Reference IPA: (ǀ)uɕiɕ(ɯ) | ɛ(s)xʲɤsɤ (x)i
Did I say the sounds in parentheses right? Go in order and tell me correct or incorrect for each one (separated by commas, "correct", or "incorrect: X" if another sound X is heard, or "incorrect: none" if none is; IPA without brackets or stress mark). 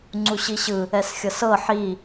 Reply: incorrect: ŋ͡ǀ, correct, correct, incorrect: ħ